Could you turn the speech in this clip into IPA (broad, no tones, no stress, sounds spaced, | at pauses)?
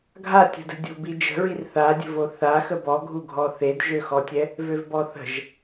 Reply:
ɡʱ a tʲ ə̤ d ə̤ dʲ o̤ b i d͡ʒ ə̤ ɹ i r θ a dʲ ə̤ v o θ a x ə b ɔ ɡʱ u ɡʱ ɔ θ e d ʒ ø x ɔ tʲ ɛ | v ø v b ɔ θ ə̤ ʒ